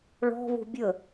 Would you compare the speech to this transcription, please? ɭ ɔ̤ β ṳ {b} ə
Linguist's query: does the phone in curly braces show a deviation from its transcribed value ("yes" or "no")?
yes